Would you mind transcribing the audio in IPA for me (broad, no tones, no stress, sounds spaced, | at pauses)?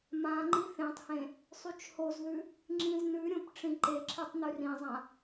m ã ŋ͡ǃ i θ ẽ tˤ h ẽ | sˤ y t͡ʃ h o z ð ʉ | ŋ͡ǁ ĩ z n ʉ ɾʲ õ p ʈ͡ʂ ĩ ǃ e ǁʰ e tˤ n ʉ r ĩ zˤ ã